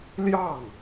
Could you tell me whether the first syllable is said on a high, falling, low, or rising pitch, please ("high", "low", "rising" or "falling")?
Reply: falling